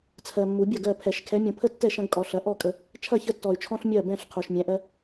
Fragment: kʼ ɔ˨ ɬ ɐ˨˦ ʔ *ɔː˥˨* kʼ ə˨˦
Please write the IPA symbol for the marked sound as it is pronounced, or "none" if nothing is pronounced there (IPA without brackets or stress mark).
ɔ˥˨